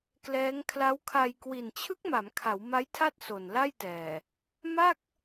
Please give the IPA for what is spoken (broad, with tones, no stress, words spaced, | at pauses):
klɛː˦˥ŋ kʰla˦˥wkʰa˧j kwi˨˩nt͡ɕʰɯ˦˥k̚ ma˩˦mkʰa˩˦w ma˦˥jtʰa˥˩t̚ so˨˩nla˥˩jtɛː˨˩ | ma˥˩k̚